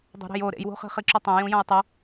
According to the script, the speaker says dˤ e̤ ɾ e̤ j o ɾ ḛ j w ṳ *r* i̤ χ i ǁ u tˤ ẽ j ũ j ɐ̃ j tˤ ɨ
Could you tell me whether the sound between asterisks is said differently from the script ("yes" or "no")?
yes